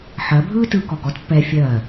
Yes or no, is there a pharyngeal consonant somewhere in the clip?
yes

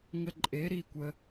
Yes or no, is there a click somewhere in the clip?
yes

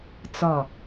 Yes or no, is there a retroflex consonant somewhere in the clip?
no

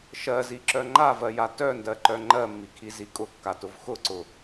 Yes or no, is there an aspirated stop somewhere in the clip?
yes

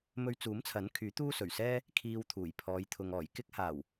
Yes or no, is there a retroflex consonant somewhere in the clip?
no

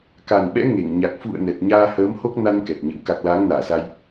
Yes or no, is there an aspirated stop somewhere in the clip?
no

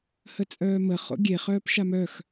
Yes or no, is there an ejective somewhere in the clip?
yes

